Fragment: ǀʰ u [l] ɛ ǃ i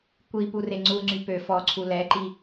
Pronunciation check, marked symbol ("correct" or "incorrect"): correct